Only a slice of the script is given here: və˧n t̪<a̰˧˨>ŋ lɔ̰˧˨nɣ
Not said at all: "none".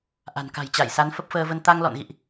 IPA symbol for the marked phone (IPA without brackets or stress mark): a˧